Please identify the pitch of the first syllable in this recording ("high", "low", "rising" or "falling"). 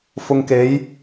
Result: low